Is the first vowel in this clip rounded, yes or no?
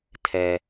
no